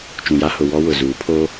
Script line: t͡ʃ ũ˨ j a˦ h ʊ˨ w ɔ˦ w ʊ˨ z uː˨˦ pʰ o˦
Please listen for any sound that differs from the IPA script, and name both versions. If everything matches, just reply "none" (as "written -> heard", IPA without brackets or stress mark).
none